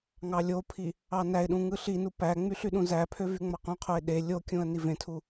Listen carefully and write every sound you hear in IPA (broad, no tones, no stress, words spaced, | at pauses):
ŋɑlʲopʰi | ɑnæɪ̯ɗũ ŋɯɬinu pæŋ͡myɬ yɗũzæpʰø vyŋ͡mɑqũqʰoɪ̯ ɗe lʲokʲũə̯ nivẽtʰu